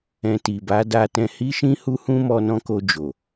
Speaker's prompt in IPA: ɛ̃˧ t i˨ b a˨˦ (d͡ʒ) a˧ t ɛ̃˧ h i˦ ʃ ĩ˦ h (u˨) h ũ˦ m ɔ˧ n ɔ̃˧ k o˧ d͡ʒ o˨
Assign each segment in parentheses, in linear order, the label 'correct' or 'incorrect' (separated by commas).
incorrect, incorrect